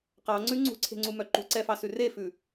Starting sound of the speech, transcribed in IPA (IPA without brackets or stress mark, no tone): q